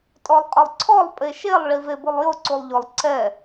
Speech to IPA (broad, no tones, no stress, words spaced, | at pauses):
tʼɔlˠqʼʊlˠǀʰɔlˠ pʼeʃelˠ ɭivebʊlˠjʊ ǀulˠʎʊlˠ ǀɛ